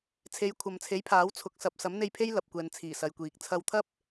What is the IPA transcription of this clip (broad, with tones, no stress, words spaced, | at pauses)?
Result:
t͡sʰe˨˧jkʷʰɐ˨mt͡sʰe˨˥j pʰaː˨˥wt͡sʰʊ˨˥k̚ sɐ˨p̚sɐ˨˥mn̪e˧j pʰe˥jlɐ˨p̚kʷɛː˨nt͡sʰiː˨˩ sɐ˨jkʷiː˨k̚ t͡sʰɐ˧wt̪ʰɐ˥p̚